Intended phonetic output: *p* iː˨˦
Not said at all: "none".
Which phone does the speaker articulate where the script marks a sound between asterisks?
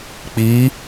k͡p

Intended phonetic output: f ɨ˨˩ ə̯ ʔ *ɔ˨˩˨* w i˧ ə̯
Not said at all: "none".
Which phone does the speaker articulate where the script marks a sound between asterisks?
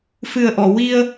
ɔ˨˩˨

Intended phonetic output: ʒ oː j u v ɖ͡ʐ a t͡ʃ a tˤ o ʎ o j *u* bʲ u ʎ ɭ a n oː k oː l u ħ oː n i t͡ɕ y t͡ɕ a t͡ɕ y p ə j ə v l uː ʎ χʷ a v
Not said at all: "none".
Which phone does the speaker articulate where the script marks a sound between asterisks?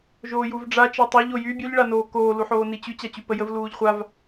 y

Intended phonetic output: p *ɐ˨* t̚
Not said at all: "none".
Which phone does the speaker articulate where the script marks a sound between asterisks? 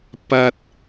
ɐ˥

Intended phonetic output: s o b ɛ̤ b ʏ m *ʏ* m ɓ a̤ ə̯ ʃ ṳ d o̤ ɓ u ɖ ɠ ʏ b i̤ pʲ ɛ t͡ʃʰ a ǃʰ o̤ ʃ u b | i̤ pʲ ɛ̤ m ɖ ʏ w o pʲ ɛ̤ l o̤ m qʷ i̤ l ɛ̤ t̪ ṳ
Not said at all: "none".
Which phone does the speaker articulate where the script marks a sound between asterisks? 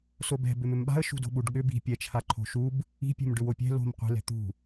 ʏ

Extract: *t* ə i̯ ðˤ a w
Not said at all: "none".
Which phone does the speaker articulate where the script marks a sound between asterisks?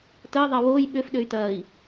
t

